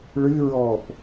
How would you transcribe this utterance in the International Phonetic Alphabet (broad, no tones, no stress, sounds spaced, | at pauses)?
ɭ ɨ ɹ ɔː p